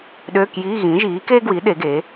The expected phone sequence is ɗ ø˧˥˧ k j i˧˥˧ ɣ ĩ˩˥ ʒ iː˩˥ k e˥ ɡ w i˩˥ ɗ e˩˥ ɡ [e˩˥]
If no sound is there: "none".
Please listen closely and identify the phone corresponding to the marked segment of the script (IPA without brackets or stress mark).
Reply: e˩˥